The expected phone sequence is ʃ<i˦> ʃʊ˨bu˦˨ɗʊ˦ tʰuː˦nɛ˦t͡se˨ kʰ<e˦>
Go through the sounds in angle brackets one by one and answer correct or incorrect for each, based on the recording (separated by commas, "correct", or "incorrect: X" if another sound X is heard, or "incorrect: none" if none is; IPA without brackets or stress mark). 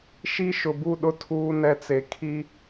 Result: correct, incorrect: i˦